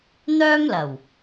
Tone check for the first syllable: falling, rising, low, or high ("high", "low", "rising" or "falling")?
high